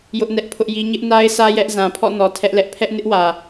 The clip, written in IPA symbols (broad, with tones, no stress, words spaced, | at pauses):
jʊ˦ʔnɛ˦ʔpʰʊ˦ʔji˦ ɲɪ˦ʔna˦ɪ̯sʰä˦ jɛ˦ʔ zã˨pʰɔ̰˦˨nɔ˨ tʰɛ˦ʔlɛ˦ʔ pʰɛ˦ʔnɪ˦ʔwä˨